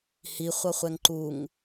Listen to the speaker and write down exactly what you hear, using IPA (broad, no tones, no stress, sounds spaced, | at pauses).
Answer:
h i χʷ ʌ χʷ ɛ ŋ ǃ u ŋ